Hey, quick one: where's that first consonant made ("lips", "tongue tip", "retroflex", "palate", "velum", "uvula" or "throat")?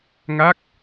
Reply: velum